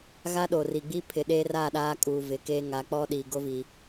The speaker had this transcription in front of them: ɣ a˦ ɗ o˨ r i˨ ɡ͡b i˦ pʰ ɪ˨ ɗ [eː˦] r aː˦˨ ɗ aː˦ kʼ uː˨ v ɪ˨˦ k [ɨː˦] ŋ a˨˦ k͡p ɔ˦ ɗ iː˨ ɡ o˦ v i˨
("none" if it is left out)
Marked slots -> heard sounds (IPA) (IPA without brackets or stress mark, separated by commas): eː˦, eː˦